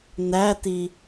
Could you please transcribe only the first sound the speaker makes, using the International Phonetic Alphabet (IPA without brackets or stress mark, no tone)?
n